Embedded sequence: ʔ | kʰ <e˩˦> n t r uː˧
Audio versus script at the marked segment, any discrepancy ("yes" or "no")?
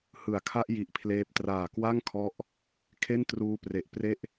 yes